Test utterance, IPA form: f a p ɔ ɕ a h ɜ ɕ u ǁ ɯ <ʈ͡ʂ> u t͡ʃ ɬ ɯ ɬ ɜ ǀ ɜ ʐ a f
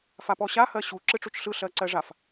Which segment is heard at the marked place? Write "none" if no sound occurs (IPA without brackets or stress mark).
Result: ʈ͡ʂ